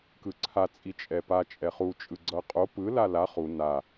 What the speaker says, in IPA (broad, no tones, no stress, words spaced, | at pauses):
kɯǀʰa t͡sʼit͡ʃʼɛpa t͡ʃʼɛχu t͡ʃʼɯɡ͡ǀʌqʼo pɯ lala χu na